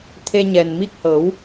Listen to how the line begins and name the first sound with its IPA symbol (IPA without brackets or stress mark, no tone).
t̪ʰ